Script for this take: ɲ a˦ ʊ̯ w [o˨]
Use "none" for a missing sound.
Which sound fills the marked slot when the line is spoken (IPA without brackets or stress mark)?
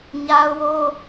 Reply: o˦